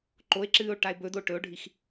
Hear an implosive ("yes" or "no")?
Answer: no